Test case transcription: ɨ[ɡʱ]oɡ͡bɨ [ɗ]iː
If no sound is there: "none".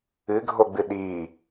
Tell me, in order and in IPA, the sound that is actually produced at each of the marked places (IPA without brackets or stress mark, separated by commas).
ɡʱ, ɗ